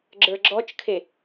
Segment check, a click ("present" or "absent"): present